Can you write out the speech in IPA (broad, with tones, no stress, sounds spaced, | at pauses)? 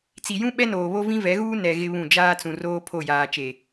t͡s i˨ j ũ˦ ɓ ɛ˦ n oː˨ β o˦ v ĩ˦ v ɛ˨˦ ɣ uː˦ n ɛ˨ ɣ ɪ˦ β ũ˦˨ d͡ʒ aː˦ t͡s ũ˨ r oː˦ pʰ o˦˨ j aː˨ t͡ʃ e˨